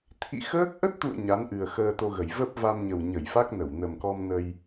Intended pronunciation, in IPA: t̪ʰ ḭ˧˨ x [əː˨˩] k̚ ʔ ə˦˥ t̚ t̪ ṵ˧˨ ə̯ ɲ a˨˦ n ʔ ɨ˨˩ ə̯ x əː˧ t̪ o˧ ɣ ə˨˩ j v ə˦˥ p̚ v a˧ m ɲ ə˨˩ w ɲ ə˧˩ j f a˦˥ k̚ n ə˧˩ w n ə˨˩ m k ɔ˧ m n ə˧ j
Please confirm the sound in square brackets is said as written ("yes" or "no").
no